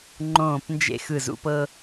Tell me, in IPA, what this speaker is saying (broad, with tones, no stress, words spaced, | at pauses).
ŋ͡ǃõː˧˩pnd͡ʒḛ˧ xɯ˧˩zṵ˧pɤ˧